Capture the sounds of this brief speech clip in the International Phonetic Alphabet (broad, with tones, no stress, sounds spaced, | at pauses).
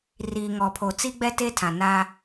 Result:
r iː˨ ŋ ɔ˨ pʰ o˨ t͡s i˦ ɡ͡b ɛ˦ t e˦ tʰ ã˨ n a˦